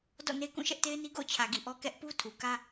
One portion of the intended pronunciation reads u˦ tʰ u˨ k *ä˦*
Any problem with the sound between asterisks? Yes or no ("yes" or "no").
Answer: no